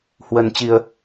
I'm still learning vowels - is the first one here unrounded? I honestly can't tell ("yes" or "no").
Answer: yes